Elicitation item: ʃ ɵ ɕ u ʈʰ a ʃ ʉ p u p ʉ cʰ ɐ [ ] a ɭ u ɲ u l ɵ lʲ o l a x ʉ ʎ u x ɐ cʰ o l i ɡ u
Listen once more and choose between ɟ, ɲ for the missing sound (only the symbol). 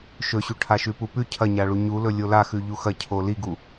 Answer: ɲ